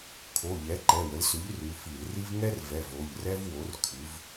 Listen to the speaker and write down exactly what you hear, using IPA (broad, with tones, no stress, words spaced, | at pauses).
kʰo˩˧˩ʎɛ˩˥ ǃɛ˩˧˩wə˩˥lsʉ˩˥ʎ rʉ˩˧˩fi˧˩˧lri˥v ŋɛ˥rvɛ˩˧˩v o˩˧˩ʎrɛ˥vwo˩˥r kʰʉ˩˧v